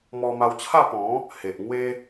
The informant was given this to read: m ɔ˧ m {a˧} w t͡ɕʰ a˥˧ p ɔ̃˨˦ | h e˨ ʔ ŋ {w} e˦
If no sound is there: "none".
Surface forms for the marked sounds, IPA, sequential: a˧, w

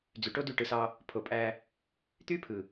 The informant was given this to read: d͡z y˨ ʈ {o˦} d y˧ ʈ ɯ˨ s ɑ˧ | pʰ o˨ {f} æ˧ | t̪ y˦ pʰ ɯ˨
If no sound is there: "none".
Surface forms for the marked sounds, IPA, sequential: o˦, pʼ

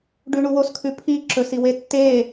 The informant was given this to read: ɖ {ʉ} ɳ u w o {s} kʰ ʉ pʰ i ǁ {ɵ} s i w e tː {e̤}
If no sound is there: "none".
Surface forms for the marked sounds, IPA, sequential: ʉ, s, ɵ, e

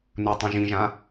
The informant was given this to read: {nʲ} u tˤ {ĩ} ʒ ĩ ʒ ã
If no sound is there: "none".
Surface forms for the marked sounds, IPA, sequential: n, ĩ

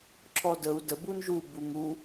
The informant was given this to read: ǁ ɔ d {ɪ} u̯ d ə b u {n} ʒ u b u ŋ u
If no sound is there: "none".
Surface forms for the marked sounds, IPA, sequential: ə, n

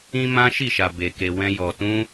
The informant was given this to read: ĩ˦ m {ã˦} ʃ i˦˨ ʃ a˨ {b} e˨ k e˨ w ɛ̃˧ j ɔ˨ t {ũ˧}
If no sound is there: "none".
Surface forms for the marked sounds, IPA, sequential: ã˦, b, ũ˧

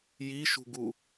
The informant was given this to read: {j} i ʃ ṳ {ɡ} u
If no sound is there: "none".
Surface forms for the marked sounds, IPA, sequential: j, ɡ

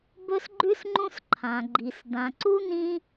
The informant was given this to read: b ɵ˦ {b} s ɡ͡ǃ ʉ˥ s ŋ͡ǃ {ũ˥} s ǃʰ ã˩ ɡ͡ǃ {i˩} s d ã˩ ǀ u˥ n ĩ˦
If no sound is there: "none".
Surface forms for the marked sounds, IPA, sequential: none, ũ˦, i˩

